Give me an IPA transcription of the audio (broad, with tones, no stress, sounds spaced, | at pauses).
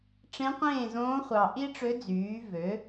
ʈ͡ʂ ẽ˧˥ qʷ ẽː˥˩ z õː˧˥ χʷ ɑ˨ ʔ i˥ ʈ͡ʂ ø˧˥ d͡z yː˩˥ v ø˩˥